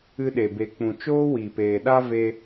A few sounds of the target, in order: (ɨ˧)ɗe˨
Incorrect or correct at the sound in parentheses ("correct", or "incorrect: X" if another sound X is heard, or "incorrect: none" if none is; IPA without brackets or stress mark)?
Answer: correct